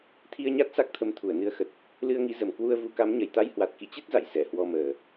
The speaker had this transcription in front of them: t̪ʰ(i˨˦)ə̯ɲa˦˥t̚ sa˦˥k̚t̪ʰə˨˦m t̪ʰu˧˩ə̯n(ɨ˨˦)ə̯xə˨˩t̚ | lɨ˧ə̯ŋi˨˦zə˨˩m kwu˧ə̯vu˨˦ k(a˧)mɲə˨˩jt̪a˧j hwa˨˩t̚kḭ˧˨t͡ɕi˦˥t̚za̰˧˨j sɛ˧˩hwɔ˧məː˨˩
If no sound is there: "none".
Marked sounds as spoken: i˧, ɨ˨˦, a˨˦

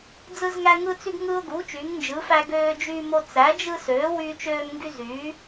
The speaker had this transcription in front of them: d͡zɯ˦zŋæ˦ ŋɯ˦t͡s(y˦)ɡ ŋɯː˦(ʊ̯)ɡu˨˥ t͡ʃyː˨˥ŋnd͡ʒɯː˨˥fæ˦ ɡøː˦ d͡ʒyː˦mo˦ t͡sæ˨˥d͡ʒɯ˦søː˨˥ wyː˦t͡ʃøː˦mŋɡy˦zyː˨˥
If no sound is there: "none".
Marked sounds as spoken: y˦, ʊ̯

